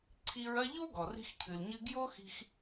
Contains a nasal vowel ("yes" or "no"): no